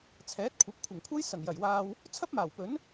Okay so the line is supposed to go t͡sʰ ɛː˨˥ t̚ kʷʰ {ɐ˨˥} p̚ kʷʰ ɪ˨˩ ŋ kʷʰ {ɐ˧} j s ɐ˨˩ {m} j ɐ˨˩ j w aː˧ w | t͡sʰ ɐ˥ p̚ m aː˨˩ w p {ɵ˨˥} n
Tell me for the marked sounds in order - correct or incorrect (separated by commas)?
correct, incorrect, incorrect, correct